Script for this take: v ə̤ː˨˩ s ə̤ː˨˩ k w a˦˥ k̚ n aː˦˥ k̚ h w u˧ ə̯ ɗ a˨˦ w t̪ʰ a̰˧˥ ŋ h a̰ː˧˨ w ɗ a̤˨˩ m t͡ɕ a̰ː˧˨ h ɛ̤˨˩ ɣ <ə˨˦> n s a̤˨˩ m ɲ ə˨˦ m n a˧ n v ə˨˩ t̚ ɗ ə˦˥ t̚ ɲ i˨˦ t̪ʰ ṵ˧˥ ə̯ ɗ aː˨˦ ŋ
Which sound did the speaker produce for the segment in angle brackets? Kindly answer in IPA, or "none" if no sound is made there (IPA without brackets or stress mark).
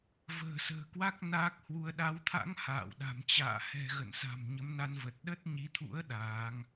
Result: ə̰˧˨